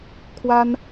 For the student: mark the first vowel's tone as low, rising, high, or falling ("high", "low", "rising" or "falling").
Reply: high